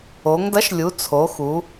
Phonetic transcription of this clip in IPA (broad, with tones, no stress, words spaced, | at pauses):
o˩˧ŋdɐ˨˥ʃlʲu˩˧ t͡sʰo˩˧xu˩˧